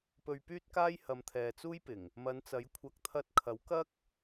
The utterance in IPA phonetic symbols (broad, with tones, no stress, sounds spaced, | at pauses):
p ɵ˧ ɥ p yː˥ t̚ k aː˥ j h ɐ˨˧ m t̪ʰ ɛː˨ t͡s uː˥ j p ɪ˨˩ ŋ | m ɐ˨˧ n t͡s ɐ˨˥ j kʷʰ ɐ˨˥ k̚ t̪ʰ ɐ˧ t̚ kʰ ɐ˨˥ w k ɐ˥ k̚